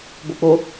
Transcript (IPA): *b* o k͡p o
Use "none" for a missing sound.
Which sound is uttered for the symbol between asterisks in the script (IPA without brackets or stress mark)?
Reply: b